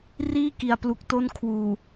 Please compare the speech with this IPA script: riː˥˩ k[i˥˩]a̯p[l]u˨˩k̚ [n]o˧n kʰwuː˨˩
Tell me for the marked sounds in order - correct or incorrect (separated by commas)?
incorrect, correct, incorrect